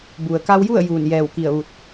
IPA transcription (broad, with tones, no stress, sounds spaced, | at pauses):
b u˩ ə̯ k a˧ w j u˥˨ ə̯ j uː˧˩ n j ɛː˧˩ w k i˧˩ ə̯ ʋ u˧˩ t̚